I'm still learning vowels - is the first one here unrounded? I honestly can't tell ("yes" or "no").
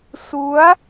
no